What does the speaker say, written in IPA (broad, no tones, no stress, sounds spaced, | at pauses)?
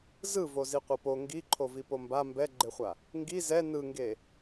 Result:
z ɯ v o z i qʷ ɤ p o ŋ ɡ i ǃʰ o v i p o m b a m b ɛ ɡ͡ǃ e χʷ a | ŋ ɡ i z ɛ n ɯ ŋ ɡ e